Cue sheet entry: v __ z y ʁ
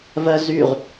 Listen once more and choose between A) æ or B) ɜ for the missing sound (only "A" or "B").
B